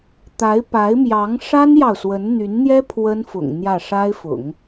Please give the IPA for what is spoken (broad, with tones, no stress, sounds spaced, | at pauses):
t̪ a˧˥ ɪ̯ p a˧˥ ɪ̯ m j ɑ˧˥ ŋ ʂ a˥ n j ɑ˨ ʊ̯ s w ə˧˥ n n̪ y˧˥ n n̪ j ɛ˥ pʰ w ə˥ n f ʊ̰˨˩ ŋ n̪ j ä˥˩ ʂ a˥ ɪ̯ f ʊ̰˨˩˦ ŋ